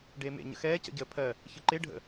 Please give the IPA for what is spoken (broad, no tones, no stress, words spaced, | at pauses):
ɖeːmḛ ɲə̰xɛː cə̰ɟəːpʰɜ | çɯǃe ɖʱə̰